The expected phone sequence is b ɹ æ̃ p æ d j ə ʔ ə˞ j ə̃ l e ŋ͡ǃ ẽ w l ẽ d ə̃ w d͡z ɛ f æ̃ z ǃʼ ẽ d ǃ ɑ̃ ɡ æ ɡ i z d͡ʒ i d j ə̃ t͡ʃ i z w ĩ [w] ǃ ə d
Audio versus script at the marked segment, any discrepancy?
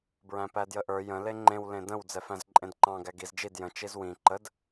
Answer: yes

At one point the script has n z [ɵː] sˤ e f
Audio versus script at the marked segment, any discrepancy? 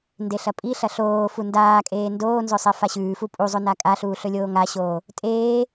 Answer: yes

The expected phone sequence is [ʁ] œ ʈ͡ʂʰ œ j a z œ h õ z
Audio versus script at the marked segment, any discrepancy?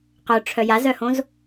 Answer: yes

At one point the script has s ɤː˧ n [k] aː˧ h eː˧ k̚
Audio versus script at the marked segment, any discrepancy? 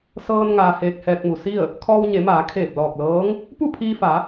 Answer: yes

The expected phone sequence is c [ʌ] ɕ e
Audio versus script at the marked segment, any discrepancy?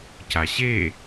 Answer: yes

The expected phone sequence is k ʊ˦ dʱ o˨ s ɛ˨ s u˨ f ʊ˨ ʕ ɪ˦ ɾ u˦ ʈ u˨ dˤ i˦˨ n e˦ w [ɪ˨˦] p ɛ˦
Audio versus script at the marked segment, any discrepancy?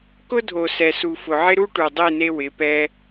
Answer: no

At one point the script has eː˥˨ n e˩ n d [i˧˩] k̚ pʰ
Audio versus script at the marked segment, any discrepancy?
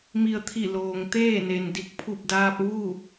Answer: no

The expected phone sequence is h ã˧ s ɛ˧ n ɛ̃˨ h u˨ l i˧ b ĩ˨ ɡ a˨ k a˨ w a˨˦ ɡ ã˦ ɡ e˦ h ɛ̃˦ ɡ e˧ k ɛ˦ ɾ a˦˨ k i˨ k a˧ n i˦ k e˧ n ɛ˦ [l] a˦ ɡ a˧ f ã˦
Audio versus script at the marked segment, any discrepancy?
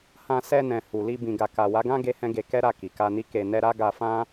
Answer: yes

